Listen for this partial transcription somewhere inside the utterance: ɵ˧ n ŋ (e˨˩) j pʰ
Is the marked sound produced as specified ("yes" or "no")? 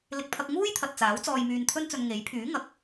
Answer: no